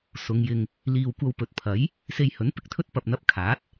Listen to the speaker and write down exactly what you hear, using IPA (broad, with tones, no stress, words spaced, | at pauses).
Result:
sʊ˨˧ŋjɪ˧ŋ | liː˨wkʷɐ˧wpɵ˨t̚pʰɐ˨˥j | se˧jhɵ˨˥npɪ˥k̚t̪ʰɵ˥t̚ pɐ˧p̚ n̪ɐ˧p̚kʰaː˨˥t̚